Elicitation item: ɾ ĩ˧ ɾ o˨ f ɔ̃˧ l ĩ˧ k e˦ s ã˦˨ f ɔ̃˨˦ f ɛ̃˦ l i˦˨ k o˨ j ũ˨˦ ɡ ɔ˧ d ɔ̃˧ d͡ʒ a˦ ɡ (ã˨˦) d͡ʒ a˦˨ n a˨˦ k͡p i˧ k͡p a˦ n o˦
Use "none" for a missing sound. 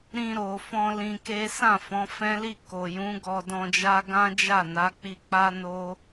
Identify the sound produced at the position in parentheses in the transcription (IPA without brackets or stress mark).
ã˦